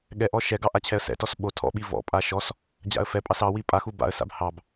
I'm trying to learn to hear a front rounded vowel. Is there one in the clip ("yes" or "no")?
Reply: no